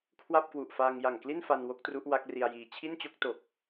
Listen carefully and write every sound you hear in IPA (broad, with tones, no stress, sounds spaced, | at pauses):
kʰ w a˥˩ p̚ k w u˨˩ ʔ f aː˧ ŋ j a˨˩ ŋ k l i˥˩ n f a˧ n w o˦˥ k̚ t r u˦˥ ʔ w a˦˥ k̚ r i˧ a̯ j iː˧ t͡ɕʰ i˥˩ n t͡ɕ o˥˩ k̚ t o˨˩ k̚